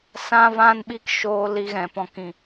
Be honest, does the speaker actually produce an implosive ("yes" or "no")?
yes